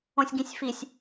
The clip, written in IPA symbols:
õ sʲ ɡ ĩ sʲ f i sʲ

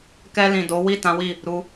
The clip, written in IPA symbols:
k ɛ˧ l ĩ˨ d o˨˦ w i˦˨ t ã˨˦ w i˦˨ | ɾ u˧

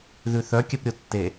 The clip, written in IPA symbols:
ð ʉ θ œ kʲ œ p ɾʲ o tː e

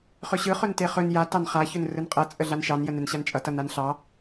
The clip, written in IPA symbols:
χ ɵ ɕ ɯ χ ɵ n t e χ ɵ n j a t ɑ n χ a ç ɵ n r ɯ n qʼ ʌ t͡sʼ ə ɮ a n ʃ ɑ n j ə n ɛ n ɕ a n t͡ʃʼ ʌ t ʌ n a n ɬ ɑ

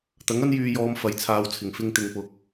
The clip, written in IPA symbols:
t̪ ɐ˨˥ ŋ ɐ˥ n j yː˧ j ɔː˧ m f ɐ˨˥ j t͡sʰ aː˨˧ w t͡sʰ ɪ˨˩ ŋ f ɪ˧ ŋ t̪ ɪ˨ ŋ p ʊ˨ k̚

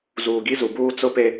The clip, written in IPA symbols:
z uː˨ ɡ i˦ z u˨ b uː˦ t͡s ʊ˦ p e˦

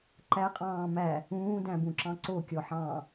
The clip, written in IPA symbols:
ǃ æ qʼ ɑ̃ː m æ | ũː d æ̃ b ũ ǁ ɑ̃ ǀ o kʲ ɔ ħ ɑ̃ː

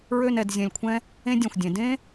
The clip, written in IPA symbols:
ɹ ø˥˧ n ɛ˧ d zʲ ɛ̃˧ lʲ kʷʰ ɛ̃˥ | ẽ˥ dʲ ɛ̃˧˩ xʷ dʲ ẽ˩˧ d ẽ˥

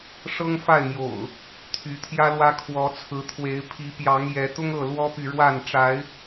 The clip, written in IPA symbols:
ʂ ɤ˦ ŋ f a˥˨ ɪ̯ m j o̰˨˩ ʊ̯ | t̪ʰ y˨˦ t̪ʰ j ä˦ l w ä˦ kʰ w ɔ˨˦ t͡sʰ ɹ̩˨˦ t̪ʰ w e˨˦ ɪ̯ pʰ i˨˦ p j ɑ˨˦ ŋ j ɛ˨˦ t̪ ʊ˦ ŋ ɤ˥˨ l w ɔ˦ p y˨ ɻ w a˥˨ n ʈ͡ʂ a˨˦ ɪ̯

